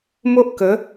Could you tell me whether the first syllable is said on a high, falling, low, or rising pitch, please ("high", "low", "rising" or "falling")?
high